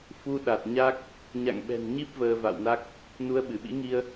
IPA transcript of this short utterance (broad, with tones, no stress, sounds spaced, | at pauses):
f u˧ ɗ a˨˩ t̚ ɲ a˦˥ k̚ | ɲ a̰˧˨ ŋ ɓ ɛ̤˨˩ n ɲ i˦˥ p̚ v əː˧ v a̰˧˨ w n a˦˥ k̚ | n u˧ ə̯ ɓ ɨ˧˩ ɓ ḭ˧˥ ŋ i˧ ə̯